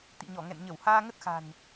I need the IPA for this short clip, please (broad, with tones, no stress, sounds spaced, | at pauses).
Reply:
t̪ ḭ˧˨ ɲ ɔ˧˩ ŋ ɛ̰˧˨ n ɲ ə˧˩ w h aː˧ ŋ ə˦˥ t̚ x a̤˨˩ n